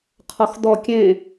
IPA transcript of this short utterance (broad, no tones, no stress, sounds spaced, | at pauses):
qʰ ɔ x d̪ ɔ kʲ ẽ